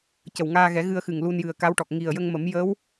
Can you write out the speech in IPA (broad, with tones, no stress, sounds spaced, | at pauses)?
c ə˨˩ w ŋ aː˧ ɣ ɛ˨˩˦ ɣ ɨ˧ ə̯ x ɨ˨˩ ŋ l u˧ n j ɨ˨˩ ə̯ k a˧˥ w ʈ ɔ˨˩ k̚ ŋ i˨˩ ə̯ j ə˧ ŋ m ə˨˩˦ m j ə˧˥ w